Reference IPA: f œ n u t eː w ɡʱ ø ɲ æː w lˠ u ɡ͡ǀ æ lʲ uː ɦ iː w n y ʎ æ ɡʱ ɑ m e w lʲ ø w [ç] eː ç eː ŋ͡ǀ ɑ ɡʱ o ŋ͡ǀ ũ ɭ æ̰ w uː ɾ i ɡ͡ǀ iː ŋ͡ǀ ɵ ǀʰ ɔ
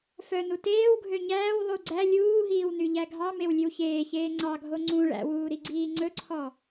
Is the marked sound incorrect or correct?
correct